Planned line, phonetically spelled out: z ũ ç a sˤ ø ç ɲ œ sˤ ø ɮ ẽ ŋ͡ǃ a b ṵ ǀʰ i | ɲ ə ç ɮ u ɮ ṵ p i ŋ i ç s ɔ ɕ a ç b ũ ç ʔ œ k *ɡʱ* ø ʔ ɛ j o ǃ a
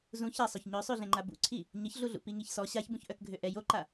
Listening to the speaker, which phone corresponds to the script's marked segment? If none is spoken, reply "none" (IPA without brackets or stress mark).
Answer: ɡʱ